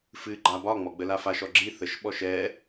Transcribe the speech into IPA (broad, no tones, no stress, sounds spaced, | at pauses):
f ɨ ɡ͡ǃ a b ɒ ŋ͡m ɔ ɡ͡b ə l a f a ʃ ɔ ɡ͡ǁ i θ ə ʃ ɓ ɔ ʃ ɛ